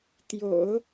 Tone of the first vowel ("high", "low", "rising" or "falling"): low